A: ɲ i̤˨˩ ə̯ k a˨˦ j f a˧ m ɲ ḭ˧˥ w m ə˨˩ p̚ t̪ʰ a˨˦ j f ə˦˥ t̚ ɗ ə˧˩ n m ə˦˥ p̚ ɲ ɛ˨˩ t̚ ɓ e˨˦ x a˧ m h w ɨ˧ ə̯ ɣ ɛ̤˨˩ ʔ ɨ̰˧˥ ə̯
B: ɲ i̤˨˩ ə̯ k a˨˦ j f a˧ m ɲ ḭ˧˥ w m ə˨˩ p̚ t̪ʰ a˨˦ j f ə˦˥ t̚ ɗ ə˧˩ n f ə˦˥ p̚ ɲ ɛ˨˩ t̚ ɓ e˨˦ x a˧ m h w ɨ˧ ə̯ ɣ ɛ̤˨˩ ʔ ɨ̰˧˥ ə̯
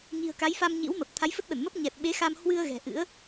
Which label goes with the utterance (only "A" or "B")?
A